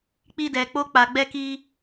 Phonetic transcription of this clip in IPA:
k͡p i˧ d ɛ˨ k͡p o˧ k͡p a˨ ɡ͡b ɛ˧ k i˧

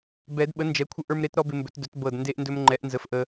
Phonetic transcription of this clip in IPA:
b ɛ˨˩˦ d ɓ ə˩˥ n d͡ʒ ɛ˩˥ kʷʰ ə˧ ʔ ə˞˧ m ɾ e˩˥ t ɾ ɔ˦˥ b ɪ˧ m b ɵ˩˥ t d ɵ˩˥ t b ɤ˨˩ d n d e˧ ʔ n d ɵ˧ m ŋ͡ǃ ɛ˩˥ ʔ n z ə˩˥ f ʔ ə˧

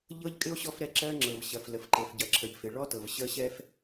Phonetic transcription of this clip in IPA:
ʎ ɤ˥ ʎ kʼ ɪ˥ o̯ ɕ ɔ˥ f ɾ ɛ˥ ǁ ɜ˥ ŋ͡ǁ ɤ˩ v ɕ ɐ˩ f l ə˩ f ǃ ɤ˩ f ɟ ɐ˩ ǁʰ ə˩ ʎ f ɪ˩ ɭ ɔ˥ t ɤ˩ v ɕ ə˥ ɕ ɛ˥ f

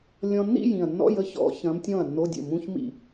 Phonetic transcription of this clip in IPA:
lʲ ɔ̃˧ nː ḭ˥˧ j ĩ˨˩ ɐ̯ nː ɔ̰˧˥˧ j ə˧˥ ç ɔ̰˧˥ ç ɐ̃˧˥ m tʲ ɔ̃˥˩ ɐ̯ nː o˧˥˧ dʲ ə̰˥˩ m ũ˧˥˧ ç m ḭ˥˩

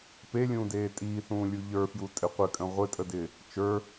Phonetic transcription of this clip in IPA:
p e lʲ ũː d eː tʼ iː θ ũː lʲ u ʎ ə˞ f j u tʼ ɪ qʷ ɪ kʼ ə̃ ʁʷ ɪ tʼ ə d ɪ | t͡ʃ ə˞

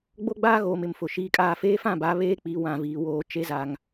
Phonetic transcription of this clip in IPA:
ɡ͡b o˦ ɡ͡b aː˦ ɣ oː˨ m ɪ˨ m f ʊ˨ ʃ iː˦ kʼ aː˦ f eː˦ f ã˦˨ b a˨˦ β eː˦ k͡p i˨˦ w ã˨ v iː˨ w oː˦ t͡ʃ e˦ z a˨ ŋ

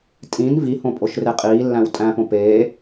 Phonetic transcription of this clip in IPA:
tʼ ĩ n v i h õ pʼ o ʃ r e qʼ iː lː æ̃ w tʼ æ̃ p õ p eː

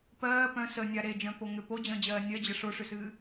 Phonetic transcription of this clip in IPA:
p ɜː p œ̃ s ə nʲ a ɾ e d͡ʒ œ̃ p o ŋ ʏ p o d͡ʑ ə̃ː d͡ʑ ɜː nʲ ɜ d͡ʑ ə ʂ o ʂ ʏ s ɨː

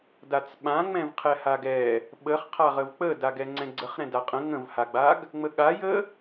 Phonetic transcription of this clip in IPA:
d a t͡s ɓ ã ŋ͡m ɛ̃ v qʰ ɛ h a ɡ ɛ | ɓ ə χ qʰ a ʁ ə v k͡p ə d a ɡ ɛ ŋ͡ǀ ɛ̃ ɡ͡ǀ ə χ ɾ ɛ̃ d a qʼ ə̃ ŋ ə̃ v h a ɡ͡b a ɡ | ŋ͡m ə ɠ a j ə

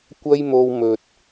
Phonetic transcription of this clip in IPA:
kʷ ɐ˥ j m o˧ w m ɵ˨ t̚

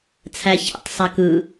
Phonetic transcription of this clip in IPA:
t͡sʰ æ ç ɛ̰ tˤ sˤ a k ɯ

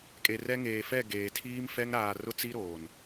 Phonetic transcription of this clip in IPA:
kʼ e˨ r ɛ˦ ŋ eː˨ f ɛ˦˨ ɡ eː˨ tʰ iː˦ m f ɛ˦ ŋ ɾ aː˨ r ʊ˦ t͡s i˦ ɾ oː˨ n

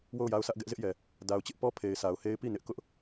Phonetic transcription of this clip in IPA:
w o˦˨ ʊ̯ j a˦ ʊ̯ sʰ ä˦ ʔ ɡ ɛ˦ ʔ z ɪ˦ ʔ j ɛ˨ | d a˨ ʊ̯ t͡ɕ ɪ˦ ʔ p ɔ˦ pʰ e˨ ɪ̯ sʰ a˨ ʊ̯ h e˦ ɪ̯ p i˦˨ n ɪ˦ ʔ k ʊ˦ ʔ

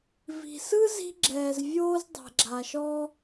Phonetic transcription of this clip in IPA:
v i̤˩ s ɯ˥ z i̤˥ ɡ͡ǁ ɛː˩ z vʲ oː˥ z dˤ ɛ̤˩ ɡ͡ǁ a˩ ʃ ɔ˥

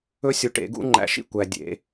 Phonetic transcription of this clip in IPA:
ɵ˦ sʲ u˨ ʈ ḛ˨˩˦ ɡ ṵ˦ ŋ͡ǃ æ̰˨˩˦ ʃ ḭ˦˨ kʷ æ˨ dʲ ḛ˨˩˦

